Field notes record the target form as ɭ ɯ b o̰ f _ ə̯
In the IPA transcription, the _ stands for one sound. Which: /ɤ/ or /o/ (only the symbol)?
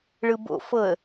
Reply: ɤ